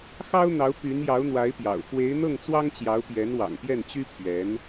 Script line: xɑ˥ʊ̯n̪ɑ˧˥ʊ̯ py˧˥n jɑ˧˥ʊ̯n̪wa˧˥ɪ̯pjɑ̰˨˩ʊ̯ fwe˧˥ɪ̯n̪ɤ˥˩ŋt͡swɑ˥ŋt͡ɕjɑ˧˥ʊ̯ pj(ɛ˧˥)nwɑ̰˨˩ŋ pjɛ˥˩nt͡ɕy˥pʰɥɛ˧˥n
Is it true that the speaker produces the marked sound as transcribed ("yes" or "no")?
yes